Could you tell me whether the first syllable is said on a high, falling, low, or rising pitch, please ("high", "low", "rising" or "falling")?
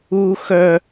high